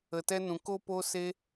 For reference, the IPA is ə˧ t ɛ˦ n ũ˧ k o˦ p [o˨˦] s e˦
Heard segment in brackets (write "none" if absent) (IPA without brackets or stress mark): o˦